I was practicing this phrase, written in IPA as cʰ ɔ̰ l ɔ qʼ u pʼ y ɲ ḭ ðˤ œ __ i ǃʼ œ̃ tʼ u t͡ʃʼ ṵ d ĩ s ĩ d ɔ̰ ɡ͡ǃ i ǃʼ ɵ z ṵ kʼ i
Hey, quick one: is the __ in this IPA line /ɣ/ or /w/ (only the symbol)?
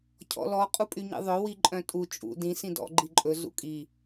w